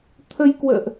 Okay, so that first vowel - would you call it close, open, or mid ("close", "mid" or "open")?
mid